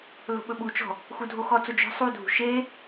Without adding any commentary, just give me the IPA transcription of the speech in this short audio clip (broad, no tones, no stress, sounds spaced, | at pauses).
l o̤ ɓ ɵ ɓ u t͡ʃ ɔ̤ | x u dʱ o x ɔ t͡s o d͡ʒ ɔ̤ sˤ u dʱ ṳ ʃ e